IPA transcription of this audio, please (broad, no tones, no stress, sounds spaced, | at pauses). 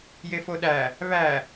j e f o ɗ æ | β æ